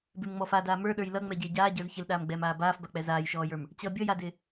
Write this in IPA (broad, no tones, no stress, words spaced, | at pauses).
bɪmŋ͡mɔ fadaː mə˞ɗə˞j lʌŋ͡mɛɟɪː ɟaːɟə˞z çɪlɗaːmɡ͡bɛːmaː baːfbak͡pɛ zaːjʃɔːjə˞m | t͡ɕʌ bʲʌjadɪː